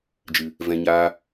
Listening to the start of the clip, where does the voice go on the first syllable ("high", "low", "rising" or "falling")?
low